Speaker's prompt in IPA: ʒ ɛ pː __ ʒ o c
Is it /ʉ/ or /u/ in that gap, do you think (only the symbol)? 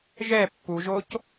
u